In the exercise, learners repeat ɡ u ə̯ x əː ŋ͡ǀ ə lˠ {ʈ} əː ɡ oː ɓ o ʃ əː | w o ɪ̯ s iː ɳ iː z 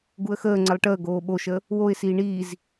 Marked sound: correct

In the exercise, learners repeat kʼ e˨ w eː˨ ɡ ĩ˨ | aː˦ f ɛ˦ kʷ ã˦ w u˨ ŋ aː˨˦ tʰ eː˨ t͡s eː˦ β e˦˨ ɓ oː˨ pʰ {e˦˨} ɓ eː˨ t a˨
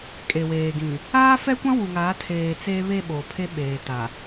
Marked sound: incorrect: e˦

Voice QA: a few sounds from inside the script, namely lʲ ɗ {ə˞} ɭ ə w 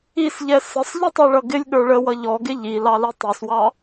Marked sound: correct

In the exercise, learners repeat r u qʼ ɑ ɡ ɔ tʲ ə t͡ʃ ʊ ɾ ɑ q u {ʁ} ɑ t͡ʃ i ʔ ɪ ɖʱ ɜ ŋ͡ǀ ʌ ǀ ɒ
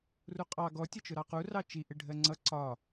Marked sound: incorrect: r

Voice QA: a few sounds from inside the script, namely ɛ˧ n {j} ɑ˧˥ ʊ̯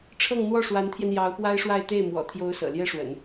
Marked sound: correct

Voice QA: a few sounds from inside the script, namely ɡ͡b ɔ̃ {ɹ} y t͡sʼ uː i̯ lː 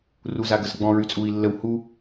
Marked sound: correct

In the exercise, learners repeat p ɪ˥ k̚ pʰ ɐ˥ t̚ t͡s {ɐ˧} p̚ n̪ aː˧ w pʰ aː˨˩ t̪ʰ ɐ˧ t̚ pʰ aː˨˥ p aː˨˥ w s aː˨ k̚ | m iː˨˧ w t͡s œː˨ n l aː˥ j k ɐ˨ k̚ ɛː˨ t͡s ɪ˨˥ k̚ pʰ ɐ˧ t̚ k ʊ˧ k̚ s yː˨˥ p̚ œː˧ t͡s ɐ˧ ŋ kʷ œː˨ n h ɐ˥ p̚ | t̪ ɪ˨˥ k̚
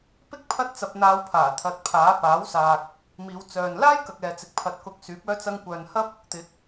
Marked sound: correct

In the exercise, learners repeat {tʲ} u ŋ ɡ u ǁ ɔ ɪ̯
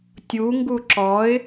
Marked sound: correct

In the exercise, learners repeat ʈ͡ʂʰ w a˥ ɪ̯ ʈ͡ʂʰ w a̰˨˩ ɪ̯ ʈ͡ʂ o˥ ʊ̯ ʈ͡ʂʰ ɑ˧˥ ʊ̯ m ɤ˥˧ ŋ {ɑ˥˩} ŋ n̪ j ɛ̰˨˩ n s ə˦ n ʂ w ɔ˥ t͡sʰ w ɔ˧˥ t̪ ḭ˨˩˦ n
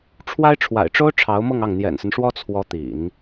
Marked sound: correct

